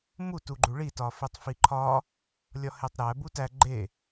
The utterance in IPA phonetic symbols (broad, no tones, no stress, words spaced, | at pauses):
mu tuɡ͡ǃuɭi tɒfetˤfiǃʰɒ | lʲɒhetˤɾæ butæ ɡ͡ǃe